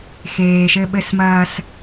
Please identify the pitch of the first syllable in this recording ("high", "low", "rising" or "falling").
low